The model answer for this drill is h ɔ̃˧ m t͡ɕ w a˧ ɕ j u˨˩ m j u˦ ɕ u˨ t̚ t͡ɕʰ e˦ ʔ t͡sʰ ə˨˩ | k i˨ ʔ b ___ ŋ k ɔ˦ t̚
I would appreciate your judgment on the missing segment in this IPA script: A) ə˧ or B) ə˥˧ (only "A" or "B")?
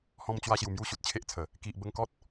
A